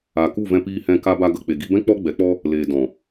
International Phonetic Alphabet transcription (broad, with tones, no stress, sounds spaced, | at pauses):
a˨ k u˦˨ v ɛ̃˧ p iː˧ h ɛ̃˧ k a˧ b a˧ ɡ ə˨ k͡p e˨ ɡ i˧ b ɛ̃˦ k͡p ɔ˦ ɡ͡b ɛ˨˦ k͡p ɔ˦ | l eː˨ d ɔ̃˨